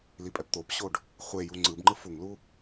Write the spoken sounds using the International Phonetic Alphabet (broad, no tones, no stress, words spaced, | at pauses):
lipʼɛpt̪opɕoɖ | χʷeju ŋ͡ǀɯbŋ͡ǃɯf uŋlu